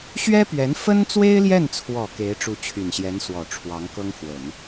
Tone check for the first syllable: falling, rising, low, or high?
high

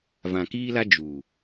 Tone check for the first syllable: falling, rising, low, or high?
low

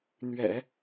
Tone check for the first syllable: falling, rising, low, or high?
low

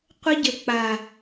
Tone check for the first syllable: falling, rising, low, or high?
high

